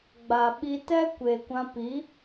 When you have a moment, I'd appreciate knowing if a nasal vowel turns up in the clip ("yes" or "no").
yes